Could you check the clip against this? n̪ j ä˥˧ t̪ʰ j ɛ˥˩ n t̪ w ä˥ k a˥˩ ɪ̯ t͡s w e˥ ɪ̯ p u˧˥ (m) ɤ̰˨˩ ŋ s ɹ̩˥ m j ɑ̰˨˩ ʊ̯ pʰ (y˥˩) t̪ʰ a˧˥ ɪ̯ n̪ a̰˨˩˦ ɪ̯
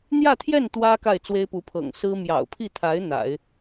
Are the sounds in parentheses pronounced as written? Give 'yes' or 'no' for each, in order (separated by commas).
no, no